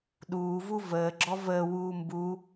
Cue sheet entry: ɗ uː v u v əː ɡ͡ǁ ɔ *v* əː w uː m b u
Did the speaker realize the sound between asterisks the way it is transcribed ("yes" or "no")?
yes